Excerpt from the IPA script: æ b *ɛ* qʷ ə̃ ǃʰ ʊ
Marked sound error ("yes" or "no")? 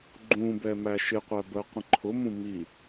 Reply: yes